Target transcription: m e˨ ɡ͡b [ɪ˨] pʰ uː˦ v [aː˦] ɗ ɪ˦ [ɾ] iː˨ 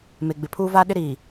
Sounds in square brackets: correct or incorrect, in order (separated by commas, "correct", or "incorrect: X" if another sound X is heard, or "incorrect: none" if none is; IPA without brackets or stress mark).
correct, correct, correct